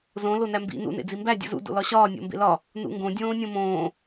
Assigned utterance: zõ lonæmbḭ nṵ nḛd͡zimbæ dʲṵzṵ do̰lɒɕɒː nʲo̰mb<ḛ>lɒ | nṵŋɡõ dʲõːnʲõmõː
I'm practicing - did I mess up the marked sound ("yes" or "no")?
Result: no